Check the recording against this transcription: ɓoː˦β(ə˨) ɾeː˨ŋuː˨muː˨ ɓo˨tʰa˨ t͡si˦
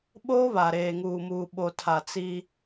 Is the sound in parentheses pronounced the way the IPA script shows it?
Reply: no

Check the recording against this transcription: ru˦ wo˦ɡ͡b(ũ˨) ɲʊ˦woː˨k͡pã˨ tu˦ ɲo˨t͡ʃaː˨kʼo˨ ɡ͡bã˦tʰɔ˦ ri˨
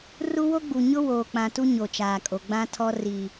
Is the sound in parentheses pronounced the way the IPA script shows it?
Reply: no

